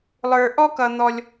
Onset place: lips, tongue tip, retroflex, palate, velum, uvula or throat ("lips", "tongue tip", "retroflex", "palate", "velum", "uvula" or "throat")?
tongue tip